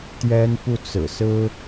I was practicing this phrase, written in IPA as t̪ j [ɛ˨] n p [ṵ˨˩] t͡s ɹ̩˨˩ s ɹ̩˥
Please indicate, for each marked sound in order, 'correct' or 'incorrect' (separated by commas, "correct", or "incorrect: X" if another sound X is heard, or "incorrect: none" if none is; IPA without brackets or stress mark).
incorrect: ɛ˥, incorrect: u˥˩